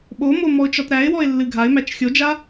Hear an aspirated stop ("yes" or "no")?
no